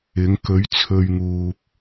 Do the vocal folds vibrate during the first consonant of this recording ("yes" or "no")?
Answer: yes